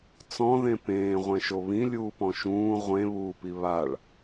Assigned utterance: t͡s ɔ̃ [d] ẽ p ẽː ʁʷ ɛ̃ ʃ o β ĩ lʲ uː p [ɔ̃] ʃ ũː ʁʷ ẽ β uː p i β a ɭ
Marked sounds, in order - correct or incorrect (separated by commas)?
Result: incorrect, correct